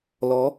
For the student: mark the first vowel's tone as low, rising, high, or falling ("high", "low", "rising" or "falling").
rising